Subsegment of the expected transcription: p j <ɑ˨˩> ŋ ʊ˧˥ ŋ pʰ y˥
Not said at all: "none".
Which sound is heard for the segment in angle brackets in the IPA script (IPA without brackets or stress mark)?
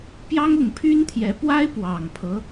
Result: ɑ˥